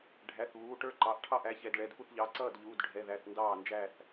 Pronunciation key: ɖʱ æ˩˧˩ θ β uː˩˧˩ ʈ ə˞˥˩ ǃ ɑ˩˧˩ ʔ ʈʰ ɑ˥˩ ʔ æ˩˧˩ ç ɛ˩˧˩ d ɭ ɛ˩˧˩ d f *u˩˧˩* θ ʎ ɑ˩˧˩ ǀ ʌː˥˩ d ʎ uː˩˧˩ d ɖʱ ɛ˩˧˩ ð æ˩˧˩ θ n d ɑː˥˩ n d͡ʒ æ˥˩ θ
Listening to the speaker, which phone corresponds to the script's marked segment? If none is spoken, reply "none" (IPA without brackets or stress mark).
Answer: u˥˩